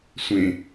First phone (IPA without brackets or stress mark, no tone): sʷ